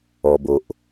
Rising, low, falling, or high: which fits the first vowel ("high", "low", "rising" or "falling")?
low